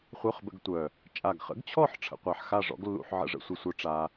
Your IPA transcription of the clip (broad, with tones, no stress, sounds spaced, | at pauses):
χʷ œ˧˥˧ χ b ə̰˧ ɡ tʷ œ˨˩ | t͡ʃʼ a˨˩ ɡ χ ə̰˨˥ ɡ t͡ɕʰ ɔ˥˨ ħ ʈ͡ʂʰ ə̰˧ qʷ a˧ ħ x a˥˨ ʐ ɔ̰˨˥ ɡ lː ṵ˧ ħ ʕ ə̰˥˨ ʐ ə̰˧ sʷ ɨ˧ sʷ œ˧˥˧ ʈ͡ʂ a˧